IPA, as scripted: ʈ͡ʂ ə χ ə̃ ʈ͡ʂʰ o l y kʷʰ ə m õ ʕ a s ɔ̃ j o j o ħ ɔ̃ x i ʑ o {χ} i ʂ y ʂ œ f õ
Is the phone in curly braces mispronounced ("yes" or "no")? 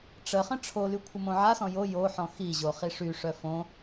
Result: no